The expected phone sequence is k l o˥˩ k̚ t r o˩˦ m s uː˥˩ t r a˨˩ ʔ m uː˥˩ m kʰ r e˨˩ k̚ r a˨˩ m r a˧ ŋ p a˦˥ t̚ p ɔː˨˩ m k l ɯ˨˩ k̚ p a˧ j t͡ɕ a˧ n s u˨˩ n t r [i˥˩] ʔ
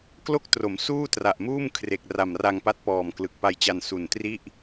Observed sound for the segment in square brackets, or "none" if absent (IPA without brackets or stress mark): i˥˩